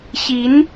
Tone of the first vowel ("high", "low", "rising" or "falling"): rising